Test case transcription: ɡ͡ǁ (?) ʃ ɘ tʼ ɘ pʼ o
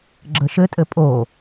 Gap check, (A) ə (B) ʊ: A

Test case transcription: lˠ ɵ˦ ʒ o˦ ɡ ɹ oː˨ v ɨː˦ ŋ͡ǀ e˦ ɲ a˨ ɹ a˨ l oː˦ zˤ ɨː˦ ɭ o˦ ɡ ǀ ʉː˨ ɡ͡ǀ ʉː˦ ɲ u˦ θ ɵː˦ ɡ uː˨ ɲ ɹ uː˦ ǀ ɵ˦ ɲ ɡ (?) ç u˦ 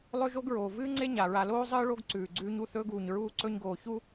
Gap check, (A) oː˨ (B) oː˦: A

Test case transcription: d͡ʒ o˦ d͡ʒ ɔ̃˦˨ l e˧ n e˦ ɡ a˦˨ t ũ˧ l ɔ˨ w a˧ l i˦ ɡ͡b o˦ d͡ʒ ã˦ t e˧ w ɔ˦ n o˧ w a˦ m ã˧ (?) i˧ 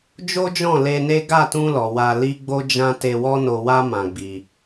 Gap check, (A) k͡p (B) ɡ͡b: B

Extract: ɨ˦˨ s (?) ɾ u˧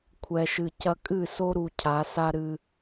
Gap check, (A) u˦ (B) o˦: B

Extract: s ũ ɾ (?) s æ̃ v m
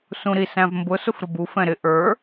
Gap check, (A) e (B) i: B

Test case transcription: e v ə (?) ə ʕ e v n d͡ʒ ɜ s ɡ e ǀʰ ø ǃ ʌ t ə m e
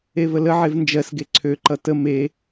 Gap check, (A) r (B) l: B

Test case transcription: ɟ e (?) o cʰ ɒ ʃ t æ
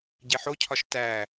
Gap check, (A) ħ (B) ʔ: A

